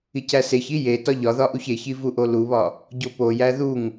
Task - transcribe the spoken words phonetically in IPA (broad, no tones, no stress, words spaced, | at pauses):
icæseçi je tɒʎɒðɒ ʔuçeçi vuʔoluβɒ | ɟopojæ ðuŋ